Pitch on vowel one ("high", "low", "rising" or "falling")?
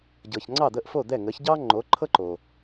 low